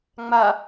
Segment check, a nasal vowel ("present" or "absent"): absent